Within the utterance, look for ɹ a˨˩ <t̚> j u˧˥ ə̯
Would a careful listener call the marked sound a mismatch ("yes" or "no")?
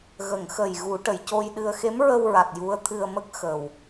no